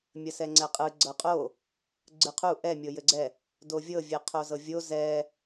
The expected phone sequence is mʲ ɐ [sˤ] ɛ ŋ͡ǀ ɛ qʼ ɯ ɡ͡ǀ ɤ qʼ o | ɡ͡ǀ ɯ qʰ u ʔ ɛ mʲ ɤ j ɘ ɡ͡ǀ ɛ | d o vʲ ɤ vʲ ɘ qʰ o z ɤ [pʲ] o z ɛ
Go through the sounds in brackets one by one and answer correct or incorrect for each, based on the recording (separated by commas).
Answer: incorrect, incorrect